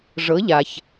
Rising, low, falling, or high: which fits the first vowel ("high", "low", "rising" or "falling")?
rising